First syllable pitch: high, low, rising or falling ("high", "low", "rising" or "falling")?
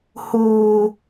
high